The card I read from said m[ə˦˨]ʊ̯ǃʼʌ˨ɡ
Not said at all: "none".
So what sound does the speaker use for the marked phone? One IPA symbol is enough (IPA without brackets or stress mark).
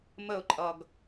ə˦˨